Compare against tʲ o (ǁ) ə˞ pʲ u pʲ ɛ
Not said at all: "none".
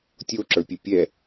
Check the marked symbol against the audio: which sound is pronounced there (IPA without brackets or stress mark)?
ǁ